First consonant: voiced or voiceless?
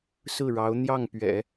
voiceless